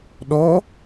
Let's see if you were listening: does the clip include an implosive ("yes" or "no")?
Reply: yes